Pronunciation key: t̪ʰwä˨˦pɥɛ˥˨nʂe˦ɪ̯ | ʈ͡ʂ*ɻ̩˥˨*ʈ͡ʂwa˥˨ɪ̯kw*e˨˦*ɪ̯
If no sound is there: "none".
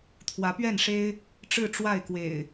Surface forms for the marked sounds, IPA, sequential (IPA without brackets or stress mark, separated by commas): ɻ̩˥˨, ḛ˨˩